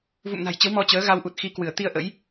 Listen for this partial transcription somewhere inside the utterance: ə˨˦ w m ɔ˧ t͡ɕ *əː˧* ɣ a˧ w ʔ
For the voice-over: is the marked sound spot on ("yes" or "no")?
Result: no